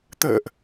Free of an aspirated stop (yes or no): yes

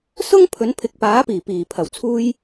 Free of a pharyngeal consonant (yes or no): yes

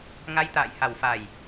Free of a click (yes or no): yes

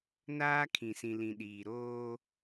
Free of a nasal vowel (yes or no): no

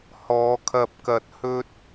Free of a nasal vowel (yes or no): yes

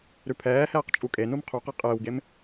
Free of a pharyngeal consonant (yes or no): yes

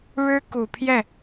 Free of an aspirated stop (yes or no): no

